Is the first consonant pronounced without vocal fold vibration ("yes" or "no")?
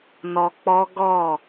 no